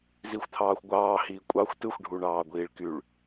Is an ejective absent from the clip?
no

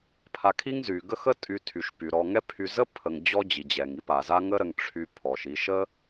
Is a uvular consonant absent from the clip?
yes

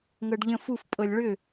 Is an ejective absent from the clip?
no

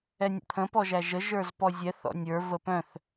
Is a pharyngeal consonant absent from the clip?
yes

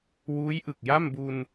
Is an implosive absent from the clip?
yes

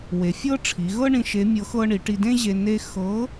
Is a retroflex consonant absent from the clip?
no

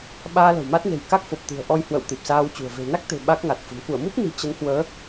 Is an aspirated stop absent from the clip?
yes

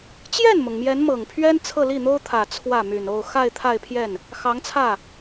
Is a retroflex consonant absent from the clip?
yes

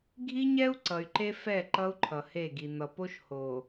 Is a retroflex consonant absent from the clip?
yes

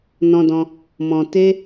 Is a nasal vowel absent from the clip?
no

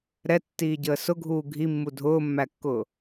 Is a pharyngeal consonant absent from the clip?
yes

